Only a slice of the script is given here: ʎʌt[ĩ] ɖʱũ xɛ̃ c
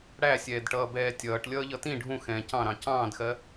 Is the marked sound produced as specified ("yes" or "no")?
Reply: yes